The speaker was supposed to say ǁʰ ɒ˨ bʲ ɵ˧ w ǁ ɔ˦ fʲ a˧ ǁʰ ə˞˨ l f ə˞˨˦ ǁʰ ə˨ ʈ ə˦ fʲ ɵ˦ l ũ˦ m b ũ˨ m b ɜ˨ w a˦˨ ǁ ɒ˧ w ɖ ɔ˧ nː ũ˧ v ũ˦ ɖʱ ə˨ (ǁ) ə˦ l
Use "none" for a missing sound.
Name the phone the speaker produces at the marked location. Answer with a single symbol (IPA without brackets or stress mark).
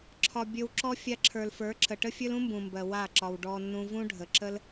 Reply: ǁ